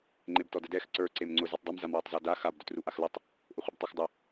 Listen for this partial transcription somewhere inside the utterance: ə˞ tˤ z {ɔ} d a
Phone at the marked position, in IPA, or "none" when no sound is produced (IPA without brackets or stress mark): ɔ